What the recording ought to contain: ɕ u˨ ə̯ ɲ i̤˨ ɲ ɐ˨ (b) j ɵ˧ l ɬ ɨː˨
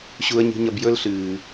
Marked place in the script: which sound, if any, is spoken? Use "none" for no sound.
b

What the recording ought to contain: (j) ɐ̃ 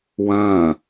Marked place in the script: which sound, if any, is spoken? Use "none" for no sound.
w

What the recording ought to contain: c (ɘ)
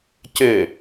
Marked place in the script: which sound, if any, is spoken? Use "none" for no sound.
ɘ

